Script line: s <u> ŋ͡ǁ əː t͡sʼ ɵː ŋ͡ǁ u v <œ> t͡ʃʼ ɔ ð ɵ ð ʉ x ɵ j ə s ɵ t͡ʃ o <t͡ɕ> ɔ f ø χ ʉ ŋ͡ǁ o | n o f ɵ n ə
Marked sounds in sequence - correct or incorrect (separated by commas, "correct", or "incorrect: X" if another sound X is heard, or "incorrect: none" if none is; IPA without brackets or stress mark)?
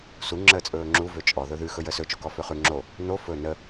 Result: correct, incorrect: ø, incorrect: k